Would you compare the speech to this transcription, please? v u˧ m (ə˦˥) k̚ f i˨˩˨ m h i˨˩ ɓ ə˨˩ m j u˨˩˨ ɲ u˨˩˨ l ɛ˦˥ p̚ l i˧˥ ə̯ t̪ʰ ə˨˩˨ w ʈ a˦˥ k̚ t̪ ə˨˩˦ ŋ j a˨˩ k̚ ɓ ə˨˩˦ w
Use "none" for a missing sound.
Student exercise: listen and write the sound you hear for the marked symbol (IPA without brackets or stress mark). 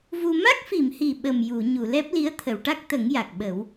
a˦˥